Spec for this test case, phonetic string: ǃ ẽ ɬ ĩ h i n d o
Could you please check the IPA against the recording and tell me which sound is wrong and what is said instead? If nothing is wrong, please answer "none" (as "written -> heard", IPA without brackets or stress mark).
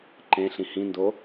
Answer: i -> ĩ